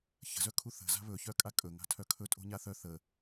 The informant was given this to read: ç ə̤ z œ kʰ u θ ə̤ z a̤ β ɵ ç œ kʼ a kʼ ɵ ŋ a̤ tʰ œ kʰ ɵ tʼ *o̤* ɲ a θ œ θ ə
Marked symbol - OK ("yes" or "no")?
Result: yes